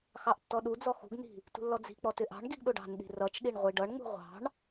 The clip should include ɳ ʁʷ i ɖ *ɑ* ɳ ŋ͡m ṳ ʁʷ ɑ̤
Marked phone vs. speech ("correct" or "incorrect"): incorrect